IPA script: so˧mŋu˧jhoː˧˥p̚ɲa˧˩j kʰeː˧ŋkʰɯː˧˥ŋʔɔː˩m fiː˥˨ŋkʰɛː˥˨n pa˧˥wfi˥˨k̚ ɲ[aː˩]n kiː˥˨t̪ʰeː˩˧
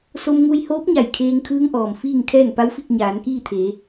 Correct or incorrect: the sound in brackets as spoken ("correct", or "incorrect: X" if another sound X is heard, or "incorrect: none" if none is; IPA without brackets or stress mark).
incorrect: aː˩˧